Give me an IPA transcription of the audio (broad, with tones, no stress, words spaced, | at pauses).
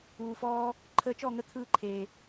uː˨fɔː˧ | ǃʰəː˧t͡ʃɔ˦˨ŋə˧ t̪ʰɯː˦ǃʰeː˨